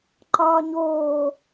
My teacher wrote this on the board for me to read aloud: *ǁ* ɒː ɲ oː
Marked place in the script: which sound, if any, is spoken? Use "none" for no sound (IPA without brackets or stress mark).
ǃ